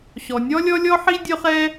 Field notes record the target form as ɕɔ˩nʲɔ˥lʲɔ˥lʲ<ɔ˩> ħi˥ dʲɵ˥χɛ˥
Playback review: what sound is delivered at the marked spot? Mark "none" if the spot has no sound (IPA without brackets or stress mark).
ɔ˥